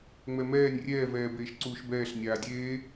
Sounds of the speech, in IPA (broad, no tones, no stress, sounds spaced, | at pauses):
ŋ͡m ɛ m ɛː nʲ rʲ ɛː v ɛː b eː ʃ ǀ uː ʃ b ɛː ɬ nʲ aː dʲ eː